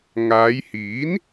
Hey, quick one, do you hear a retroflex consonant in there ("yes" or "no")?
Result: no